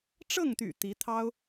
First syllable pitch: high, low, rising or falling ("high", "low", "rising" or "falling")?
falling